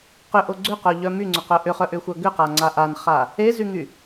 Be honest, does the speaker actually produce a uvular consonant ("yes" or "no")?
yes